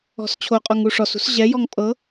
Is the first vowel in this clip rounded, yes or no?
yes